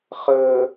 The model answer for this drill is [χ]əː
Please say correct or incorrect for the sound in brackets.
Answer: correct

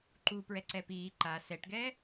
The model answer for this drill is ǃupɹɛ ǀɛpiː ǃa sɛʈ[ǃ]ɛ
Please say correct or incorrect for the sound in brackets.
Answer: incorrect: ɡ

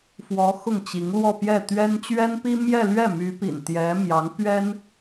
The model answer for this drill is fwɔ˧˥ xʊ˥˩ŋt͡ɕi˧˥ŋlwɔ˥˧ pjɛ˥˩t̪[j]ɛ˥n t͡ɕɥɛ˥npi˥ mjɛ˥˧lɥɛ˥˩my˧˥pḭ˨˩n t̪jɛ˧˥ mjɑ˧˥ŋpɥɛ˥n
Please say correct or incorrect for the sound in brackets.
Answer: incorrect: ɥ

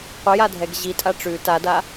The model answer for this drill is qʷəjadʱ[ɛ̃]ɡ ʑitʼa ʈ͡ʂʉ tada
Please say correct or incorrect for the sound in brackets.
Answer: incorrect: ɛ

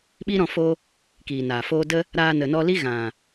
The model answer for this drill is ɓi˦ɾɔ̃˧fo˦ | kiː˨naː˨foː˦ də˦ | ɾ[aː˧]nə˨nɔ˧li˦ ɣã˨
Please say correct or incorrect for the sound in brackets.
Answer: correct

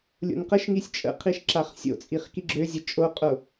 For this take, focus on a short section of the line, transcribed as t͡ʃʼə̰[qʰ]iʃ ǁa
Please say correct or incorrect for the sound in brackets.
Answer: correct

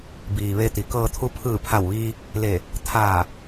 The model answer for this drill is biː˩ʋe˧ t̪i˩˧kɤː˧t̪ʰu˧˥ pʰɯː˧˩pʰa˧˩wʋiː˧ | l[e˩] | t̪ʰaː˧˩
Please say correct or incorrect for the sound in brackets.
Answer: incorrect: e˧˩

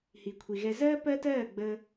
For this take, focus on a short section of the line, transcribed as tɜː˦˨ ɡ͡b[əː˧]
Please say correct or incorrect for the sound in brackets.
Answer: correct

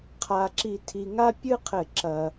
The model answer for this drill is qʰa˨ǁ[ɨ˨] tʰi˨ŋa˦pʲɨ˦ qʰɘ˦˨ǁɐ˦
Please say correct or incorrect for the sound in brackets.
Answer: incorrect: i˨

